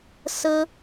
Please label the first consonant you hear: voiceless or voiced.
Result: voiceless